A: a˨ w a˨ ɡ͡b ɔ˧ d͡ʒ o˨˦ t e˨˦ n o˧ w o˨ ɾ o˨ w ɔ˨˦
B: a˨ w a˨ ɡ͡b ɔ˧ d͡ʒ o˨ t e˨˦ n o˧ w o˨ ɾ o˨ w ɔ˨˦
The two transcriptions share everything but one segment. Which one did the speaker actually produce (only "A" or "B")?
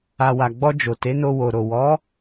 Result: B